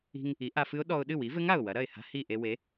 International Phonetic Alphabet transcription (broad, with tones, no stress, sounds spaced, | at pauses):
i̤˧ ŋ | i˩˥ ʔ a˧ f ɨ˦˥ ʊ̯ ɗ ɔ˧ ʊ̯ ɗ ɨ˥˩ w i˩˥ v ɘ˦˥ ŋ a˧˩ ʊ̯ w ɐ˩˥ ɾ ɐ˥˩ ɪ̯ h a̤˦˥ h i˥˩ ʔ e˧ w e˩˥